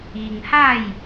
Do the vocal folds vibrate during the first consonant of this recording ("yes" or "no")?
yes